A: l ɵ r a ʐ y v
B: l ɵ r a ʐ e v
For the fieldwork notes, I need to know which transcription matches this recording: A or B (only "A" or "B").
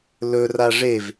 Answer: B